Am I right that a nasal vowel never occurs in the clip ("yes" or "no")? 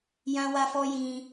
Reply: no